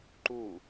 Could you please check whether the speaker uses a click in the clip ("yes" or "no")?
yes